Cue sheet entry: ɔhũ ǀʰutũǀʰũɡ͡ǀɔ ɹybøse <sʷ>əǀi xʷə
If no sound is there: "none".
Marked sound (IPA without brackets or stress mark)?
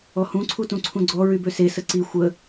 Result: s